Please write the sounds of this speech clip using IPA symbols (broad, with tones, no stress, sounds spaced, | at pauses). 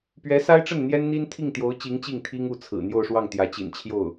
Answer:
p ɥ ɛ˧˥ s a˥ ɪ̯ ʈ͡ʂ ə˥˩ n n̪ j ɛ˥ n n̪ i˥ n t̪ʰ i˥˩ ŋ t̪ j o˧˥ ʊ̯ t͡ɕ i˧˥ ŋ t͡ɕ i˥˩ ŋ t̪ʰ i˥ ŋ u˥˩ t͡sʰ ɹ̩˨˩ n̪ j o˥˧ ʊ̯ ʂ w ɑ˥˩ ŋ t̪ j ä˧˥ t͡ɕ ḭ˨˩ n t͡ɕʰ j o˥˩ ʊ̯